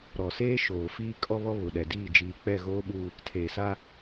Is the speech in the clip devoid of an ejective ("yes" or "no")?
no